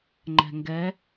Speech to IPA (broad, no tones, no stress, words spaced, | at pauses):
ŋ͡ǃɛ̤ŋɡɛ